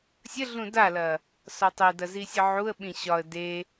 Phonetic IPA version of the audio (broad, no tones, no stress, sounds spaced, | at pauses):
sʲ ə ɮ ũ d a l ɐ | s ɒ tˤ e d ɐ z i sʲ ə ʕ u ə̯ ɓ ĩ ɕ ɒ ə̯ d e